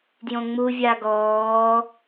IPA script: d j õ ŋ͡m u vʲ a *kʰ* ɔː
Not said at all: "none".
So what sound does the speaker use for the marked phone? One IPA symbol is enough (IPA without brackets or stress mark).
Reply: ɡ